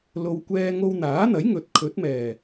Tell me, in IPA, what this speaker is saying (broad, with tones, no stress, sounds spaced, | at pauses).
l o˨ w kʷ ɛː˧ ŋ o˧ w n̪ aː˨˥ n̪ ɐ˨˥ j ŋ ɵ˨ t̚ kʰ ɵ˨˥ t̚ m ɛː˨˩